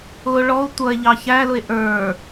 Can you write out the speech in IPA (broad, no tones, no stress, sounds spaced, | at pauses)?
ʊ ɭ ɔ o̯ tʷ ʌ e̯ ʎ ɑ ç æ l ʊ e̯ ʔ ə˞